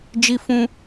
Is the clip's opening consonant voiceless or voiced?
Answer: voiced